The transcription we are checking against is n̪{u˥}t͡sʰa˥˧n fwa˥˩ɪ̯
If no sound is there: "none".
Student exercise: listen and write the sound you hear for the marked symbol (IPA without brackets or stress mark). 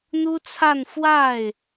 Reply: u˥